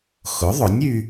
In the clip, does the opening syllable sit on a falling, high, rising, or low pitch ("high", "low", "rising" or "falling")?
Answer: rising